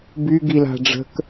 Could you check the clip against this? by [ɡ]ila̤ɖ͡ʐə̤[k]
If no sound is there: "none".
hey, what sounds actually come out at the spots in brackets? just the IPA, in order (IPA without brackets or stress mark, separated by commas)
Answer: ɡ, k